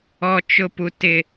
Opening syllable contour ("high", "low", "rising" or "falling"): high